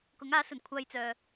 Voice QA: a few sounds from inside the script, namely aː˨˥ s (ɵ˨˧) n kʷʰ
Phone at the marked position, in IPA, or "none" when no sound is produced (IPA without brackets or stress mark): ɵ˨˩